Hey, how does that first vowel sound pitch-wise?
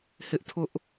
high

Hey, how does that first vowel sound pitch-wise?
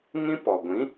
high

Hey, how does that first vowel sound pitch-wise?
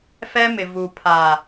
high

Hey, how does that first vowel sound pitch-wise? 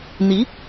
rising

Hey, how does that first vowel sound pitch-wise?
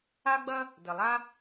high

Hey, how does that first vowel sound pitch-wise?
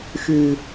low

